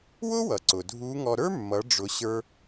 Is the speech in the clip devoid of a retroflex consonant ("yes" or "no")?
no